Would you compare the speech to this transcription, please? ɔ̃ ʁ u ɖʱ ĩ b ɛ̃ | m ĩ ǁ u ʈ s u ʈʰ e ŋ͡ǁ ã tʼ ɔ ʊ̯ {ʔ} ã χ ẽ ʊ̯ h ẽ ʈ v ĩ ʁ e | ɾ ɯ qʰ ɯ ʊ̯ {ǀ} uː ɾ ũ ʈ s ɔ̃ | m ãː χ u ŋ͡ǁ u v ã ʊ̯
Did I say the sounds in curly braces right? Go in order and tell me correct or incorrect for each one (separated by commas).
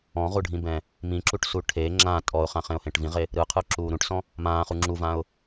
incorrect, incorrect